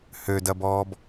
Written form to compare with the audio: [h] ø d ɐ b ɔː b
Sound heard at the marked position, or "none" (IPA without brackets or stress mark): h